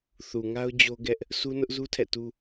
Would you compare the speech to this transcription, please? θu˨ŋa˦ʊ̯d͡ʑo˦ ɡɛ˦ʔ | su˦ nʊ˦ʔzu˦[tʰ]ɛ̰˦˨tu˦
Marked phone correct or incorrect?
correct